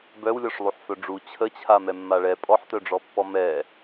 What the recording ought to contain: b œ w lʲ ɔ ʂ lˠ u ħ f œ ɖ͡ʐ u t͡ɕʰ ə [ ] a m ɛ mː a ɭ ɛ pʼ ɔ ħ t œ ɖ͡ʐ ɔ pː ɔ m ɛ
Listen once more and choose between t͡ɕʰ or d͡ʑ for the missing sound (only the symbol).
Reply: t͡ɕʰ